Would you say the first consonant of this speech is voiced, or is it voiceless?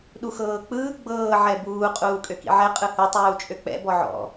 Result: voiced